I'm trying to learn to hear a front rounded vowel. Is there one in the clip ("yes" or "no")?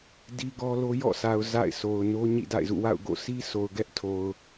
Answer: no